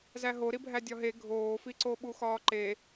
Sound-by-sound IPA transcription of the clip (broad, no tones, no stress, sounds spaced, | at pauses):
z æ ɦ o ɾ i bʱ æ dʲ ɒ ɦ e ɡʱ oː f i ǀ o ɓ u x ɒː ǃ e